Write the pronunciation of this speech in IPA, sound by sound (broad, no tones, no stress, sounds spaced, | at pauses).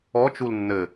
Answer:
ɔ t͡ʃ u l nː ɘ